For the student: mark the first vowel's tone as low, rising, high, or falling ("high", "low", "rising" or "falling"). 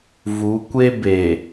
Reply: rising